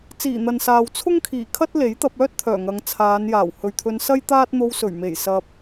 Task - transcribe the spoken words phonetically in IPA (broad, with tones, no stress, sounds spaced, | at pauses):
t͡s iː˨˩ n̪ ɐ˨ n s aː˨ w t͡sʰ ʊ˥ ŋ kʰ iː˨˩ kʰ ɐ˥ t̚ l e˨˥ j t̪ ɐ˧ p̚ œː˥ t̚ t̪ʰ œː˨˩ ŋ ɐ˨˧ ŋ t͡sʰ aː˨˧ n j aː˨˩ w h ɵ˨ ɥ t̪ʰ ɵ˧ n s ɐ˥ j t̪ aː˥ t̚ n̪ o˧ w s ɵ˨˩ ɥ m e˨˩ j s ɐ˧ p̚